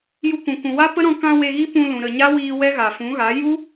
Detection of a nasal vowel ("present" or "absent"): present